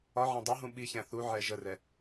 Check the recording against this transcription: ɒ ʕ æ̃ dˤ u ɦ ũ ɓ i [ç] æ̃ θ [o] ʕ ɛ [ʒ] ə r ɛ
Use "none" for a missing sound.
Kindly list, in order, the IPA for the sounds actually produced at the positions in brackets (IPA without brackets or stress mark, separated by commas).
ç, u, ʒ